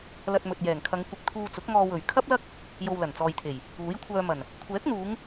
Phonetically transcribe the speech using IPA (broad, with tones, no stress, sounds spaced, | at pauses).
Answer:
l ɐ˧ t̚ m ɵ˨ t̚ j ɛː˨˩ ŋ kʰ ɐ˨˧ ŋ kʷ ɪ˨ k̚ t̪ʰ uː˧ t͡s ʊ˨˥ k̚ ŋ ɔː˧ w ɵ˨˩ ɥ kʰ ɐ˥ p̚ l ɐ˥ k̚ | j o˧ w l ɐ˨˩ n t͡s ɔː˨ j t̪ʰ e˨˩ j | uː˨˥ j kʷʰ œː˧ m ɐ˨˩ n | kʷʰ ɛː˨˥ k̚ n̪ uː˨˧ ŋ